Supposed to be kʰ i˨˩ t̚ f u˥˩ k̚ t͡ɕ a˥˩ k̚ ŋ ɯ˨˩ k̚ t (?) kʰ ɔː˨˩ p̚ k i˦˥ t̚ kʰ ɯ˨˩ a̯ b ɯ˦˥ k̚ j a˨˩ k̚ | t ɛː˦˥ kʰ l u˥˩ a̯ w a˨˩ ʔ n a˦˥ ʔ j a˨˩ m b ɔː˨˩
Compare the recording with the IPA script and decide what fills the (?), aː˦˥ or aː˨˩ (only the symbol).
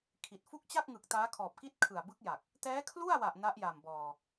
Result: aː˦˥